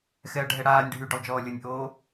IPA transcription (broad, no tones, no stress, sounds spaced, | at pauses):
x ɛ ɐ̯ ɖʱ ɛ ɽ aː nʲ ɖʱ y ɖ o lˠ d͡ʒ ɔː lʲ ʊ nʲ ʔ oː